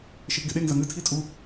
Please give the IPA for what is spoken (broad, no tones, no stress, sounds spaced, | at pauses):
ʃ e p ɡ e ɗ e ŋ z ɐ ŋ ɨ tʰ i tʼ u